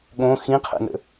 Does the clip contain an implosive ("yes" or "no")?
yes